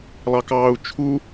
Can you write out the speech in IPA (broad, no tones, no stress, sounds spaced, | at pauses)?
lˠ ɑ k ɑː u̯ t͡ʃʰ u